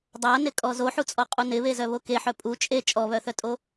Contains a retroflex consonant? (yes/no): no